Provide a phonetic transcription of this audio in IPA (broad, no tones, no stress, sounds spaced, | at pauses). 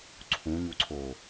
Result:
ǀʰ ũ ɲ u ǀʰ o